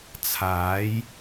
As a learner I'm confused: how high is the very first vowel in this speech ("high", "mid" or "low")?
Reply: low